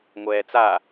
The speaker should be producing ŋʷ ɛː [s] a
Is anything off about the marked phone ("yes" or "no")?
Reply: yes